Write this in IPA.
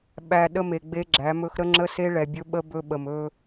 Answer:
ɓ æ˨ ɗ ə˦ m e˨ ɡ͡b e˦ ɡ͡ǁ æ˨˦ m ɵ˦ x ɾ ə˦ ŋ͡ǁ ə˦ s e˦ ɭ ɛ˨ bʲ ɵ˦ ɓ ə˦ b ɵ˦ ɓ ə˨ m ɵ˦

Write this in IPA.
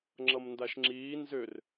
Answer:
ŋ͡ǁ ʌ m n d a ʃ ŋ͡ǁ iː n z ʏ r

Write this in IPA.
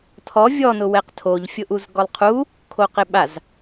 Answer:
tʰ ɔ vʲ ɔ n ʊ w ɛ q tʰ o ʎ fʲ ʊ ʔ u z ɡ ɔ lˠ qʰ u | kʰ o q ɪ ɓ a z

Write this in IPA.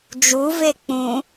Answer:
d͡ʒ u v e k͡p ũ

